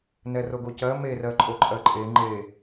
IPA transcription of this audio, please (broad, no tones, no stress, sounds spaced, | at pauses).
n ɛ r o ɡ o c ɜ m e r ɜ ǃʼ o ǃʼ ɜ ǃʼ e ŋ͡ǃ e